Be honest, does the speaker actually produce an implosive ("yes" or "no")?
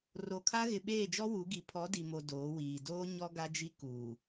yes